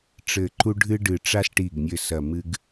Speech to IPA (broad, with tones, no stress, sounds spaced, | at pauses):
ʈ͡ʂ ɘ˨˩ ǃ u˧ ɖʱ ɨ˧ ɖ ɨ˨˩ ʈ͡ʂ a˧ s ʈ i˨˩ ɡ nʲ ɘ˨˩ s ɐ˨˩ m ɨ˧ ɡ